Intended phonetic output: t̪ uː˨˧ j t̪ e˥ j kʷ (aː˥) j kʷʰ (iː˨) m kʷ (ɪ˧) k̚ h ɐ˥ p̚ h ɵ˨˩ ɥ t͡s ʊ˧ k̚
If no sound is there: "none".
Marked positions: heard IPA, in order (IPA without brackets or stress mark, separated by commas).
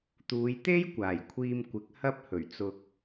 aː˨˩, iː˧, ɪ˨˥